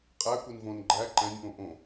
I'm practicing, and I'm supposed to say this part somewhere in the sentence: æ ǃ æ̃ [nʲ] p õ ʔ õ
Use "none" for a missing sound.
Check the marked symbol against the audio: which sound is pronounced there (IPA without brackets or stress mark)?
nʲ